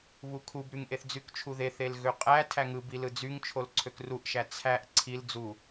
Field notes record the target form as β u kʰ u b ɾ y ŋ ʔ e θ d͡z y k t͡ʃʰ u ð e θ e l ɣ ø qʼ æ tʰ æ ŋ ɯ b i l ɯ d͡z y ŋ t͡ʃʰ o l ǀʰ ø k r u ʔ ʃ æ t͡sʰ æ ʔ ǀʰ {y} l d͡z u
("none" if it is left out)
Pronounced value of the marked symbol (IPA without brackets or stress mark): i